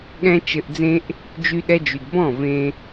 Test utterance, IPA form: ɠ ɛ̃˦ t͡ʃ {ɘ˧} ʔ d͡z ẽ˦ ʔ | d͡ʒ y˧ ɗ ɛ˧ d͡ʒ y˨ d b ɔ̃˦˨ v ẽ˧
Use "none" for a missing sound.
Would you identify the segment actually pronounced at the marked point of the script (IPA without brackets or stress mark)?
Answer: ɘ˧